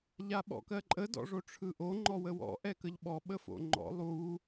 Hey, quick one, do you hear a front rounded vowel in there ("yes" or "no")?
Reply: no